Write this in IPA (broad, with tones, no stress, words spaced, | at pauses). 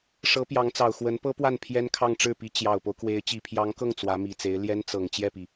ʂɤ˧˥pjɑ˧˥ŋt͡sɑ˨˩ʊ̯ xwə˧˥npɤ˥pwa˥˩n pʰjɛ˥nkʰɑ˥˧ŋ ʈ͡ʂɻ̩˥˩pi˧˥ t͡ɕjɑ˨˩ʊ̯po˦ʊ̯kwe˧˥ɪ̯ t͡ɕi˨˩pʰjɑ˧˥ŋkɤ˥˩ŋ t͡swä˧˥mi˨˩t͡se˧˥ɪ̯ ljɛ˥nt͡sɤ˨˩ŋ t͡ɕjɛ˥˩pi˩